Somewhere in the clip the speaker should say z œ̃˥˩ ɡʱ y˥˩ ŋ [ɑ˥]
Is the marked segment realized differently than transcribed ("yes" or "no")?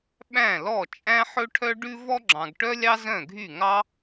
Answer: no